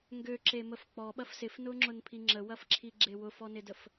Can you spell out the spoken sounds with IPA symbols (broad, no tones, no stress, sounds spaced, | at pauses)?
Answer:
ŋ ɡ ø ǁ e m ə f k͡p ɔ ɓ ɐ f s ɪ f n ʊ ŋ͡ǁ ʊ n pʰ i ŋ͡ǁ ə w ɐ f ǁʰ i ɡ͡ǁ e w ʊ f ɔ n ɪ d ə f